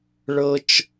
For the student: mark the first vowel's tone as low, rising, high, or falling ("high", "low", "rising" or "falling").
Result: high